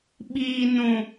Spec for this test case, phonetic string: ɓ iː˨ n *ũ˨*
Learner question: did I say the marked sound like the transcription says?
yes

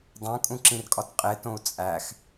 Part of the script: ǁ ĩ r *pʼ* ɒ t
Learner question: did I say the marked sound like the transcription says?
no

